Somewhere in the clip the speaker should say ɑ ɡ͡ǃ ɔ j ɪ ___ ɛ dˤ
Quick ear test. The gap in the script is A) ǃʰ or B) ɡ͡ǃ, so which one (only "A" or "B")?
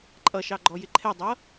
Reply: A